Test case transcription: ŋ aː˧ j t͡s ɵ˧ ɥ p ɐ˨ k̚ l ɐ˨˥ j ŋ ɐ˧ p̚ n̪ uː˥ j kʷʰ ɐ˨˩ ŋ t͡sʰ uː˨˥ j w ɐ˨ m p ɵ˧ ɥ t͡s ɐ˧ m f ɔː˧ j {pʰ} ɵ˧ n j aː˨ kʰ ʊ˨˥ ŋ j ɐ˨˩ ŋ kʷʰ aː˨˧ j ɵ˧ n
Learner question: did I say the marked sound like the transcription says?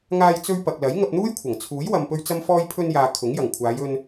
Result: yes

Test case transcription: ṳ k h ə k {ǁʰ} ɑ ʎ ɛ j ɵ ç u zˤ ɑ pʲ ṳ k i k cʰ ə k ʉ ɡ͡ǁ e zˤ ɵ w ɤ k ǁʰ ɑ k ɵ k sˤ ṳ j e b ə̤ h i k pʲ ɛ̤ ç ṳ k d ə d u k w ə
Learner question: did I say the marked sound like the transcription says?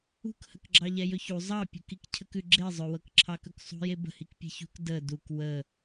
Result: no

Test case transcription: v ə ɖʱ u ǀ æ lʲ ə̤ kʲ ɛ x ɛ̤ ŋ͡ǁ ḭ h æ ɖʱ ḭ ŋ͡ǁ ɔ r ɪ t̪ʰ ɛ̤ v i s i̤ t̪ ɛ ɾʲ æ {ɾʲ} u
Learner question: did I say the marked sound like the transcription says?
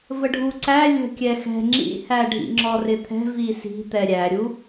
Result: yes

